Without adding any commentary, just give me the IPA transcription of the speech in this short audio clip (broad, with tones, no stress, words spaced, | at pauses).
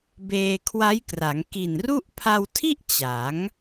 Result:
beː˧kʰwa˦˥jkra˩˦ŋ ki˨˩nru˥˩ʔ pʰa˧wtʰi˥˩ʔ t͡ɕa˩˦ŋ